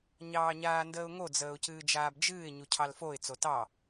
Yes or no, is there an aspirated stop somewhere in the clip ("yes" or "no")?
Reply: yes